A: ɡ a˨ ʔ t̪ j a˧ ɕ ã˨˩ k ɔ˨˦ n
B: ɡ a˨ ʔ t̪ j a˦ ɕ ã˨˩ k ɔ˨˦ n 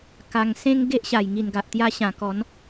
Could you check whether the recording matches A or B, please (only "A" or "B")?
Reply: A